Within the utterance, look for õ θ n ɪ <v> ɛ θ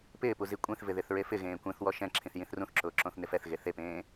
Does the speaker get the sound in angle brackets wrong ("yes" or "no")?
yes